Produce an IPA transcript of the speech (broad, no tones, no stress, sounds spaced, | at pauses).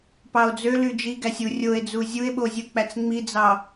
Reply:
p ɑ o̯ d͡z ø l y d͡ʒ i ɡ æ sʲ u rʲ o e̯ d͡z u zʲ u e̯ ɓ o zʲ u k͡p æ t͡s ŋ͡m i d͡z ɑ